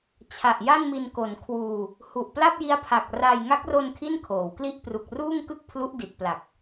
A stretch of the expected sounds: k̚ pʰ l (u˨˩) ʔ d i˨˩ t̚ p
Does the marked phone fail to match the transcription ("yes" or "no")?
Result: yes